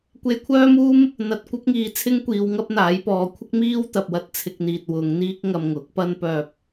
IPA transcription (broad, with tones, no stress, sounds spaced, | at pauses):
kʷ e˧ j kʷʰ œː˥ m uː˥ m | n̪ ɐ˧ t̚ kʷ ɐ˥ p̚ ŋ iː˨˧ t͡sʰ ɪ˥ ŋ kʷ iː˨˧ w ŋ ɐ˥ p̚ n̪ aː˨˥ j p ɔː˨˧ kʷʰ ɪ˥ k̚ m iː˥ w t̪ ɐ˨ p̚ w ɐ˥ t̚ t͡sʰ ɪ˧ k̚ n̪ iː˨ t̚ w ʊ˨˧ ŋ n̪ iː˥ k̚ ŋ ɐ˧ m ŋ ʊ˨˥ k̚ p ɐ˥ n p œː˧ p̚